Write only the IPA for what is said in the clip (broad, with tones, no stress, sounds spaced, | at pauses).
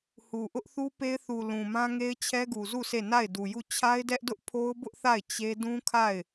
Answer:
h u˨ ʔ ʊ˦ ʔ θ u˦ p e˦ ɪ̯ θ u˨ l ũ˨ m ã˦ ŋ e˦ ɪ̯ t͡ɕʰ ɛ˦ ɡ u˨ z u˦˨ sʰ e˦˨ n a˦˨ ɪ̯ d u˨ j u˦˨ t͡ɕʰ a˦ ɪ̯ d ɛ˦ ʔ d ʊ˦ ʔ pʰ o˦ ʊ̯ b ʊ˦ ʔ θ a˦˨ ɪ̯ t͡ɕ e˦ d ũ˦ kʰ a˦˨ ɪ̯